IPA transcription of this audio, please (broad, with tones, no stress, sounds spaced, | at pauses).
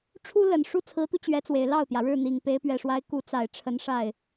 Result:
ʈ͡ʂʰ u˥ l ə˨˩ n ʂ u˥ t͡sʰ ɹ̩˧˥ t̪ u˧ t͡ɕ ɥ ɛ˧˥ t͡s w e˨˩ ɪ̯ l ɑ˥˩ ʊ̯ t̪ j ä˩ ɻ ɻ̩˥˩ n̪ i˨˩ ŋ p e˧˥ ɪ̯ p ɥ ɛ˨˩ ʂ w a˧˥ ɪ̯ k u˧˥ t͡s a˨˩ ɪ̯ ʈ͡ʂʰ ə˧˥ n ʂ a˥˩ ɪ̯